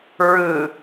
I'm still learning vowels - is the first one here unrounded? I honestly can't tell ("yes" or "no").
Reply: yes